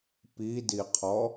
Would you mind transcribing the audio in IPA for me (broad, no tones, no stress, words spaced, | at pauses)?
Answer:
pidiqʰɔ